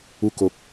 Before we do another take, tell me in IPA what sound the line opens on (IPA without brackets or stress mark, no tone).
u